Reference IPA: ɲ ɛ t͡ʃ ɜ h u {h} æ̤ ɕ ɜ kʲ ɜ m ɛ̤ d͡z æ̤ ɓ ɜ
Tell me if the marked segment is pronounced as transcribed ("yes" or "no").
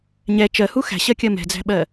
no